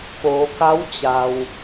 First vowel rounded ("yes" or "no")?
yes